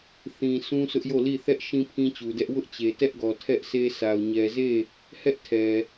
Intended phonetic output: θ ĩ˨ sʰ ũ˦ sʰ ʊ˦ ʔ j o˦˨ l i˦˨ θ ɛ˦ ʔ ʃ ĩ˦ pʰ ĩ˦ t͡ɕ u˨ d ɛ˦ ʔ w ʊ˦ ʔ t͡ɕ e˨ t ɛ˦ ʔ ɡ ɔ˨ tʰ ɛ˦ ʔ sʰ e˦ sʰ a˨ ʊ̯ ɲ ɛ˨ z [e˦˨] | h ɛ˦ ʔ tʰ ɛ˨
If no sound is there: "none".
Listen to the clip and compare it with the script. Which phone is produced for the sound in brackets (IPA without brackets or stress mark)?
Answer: e˦˨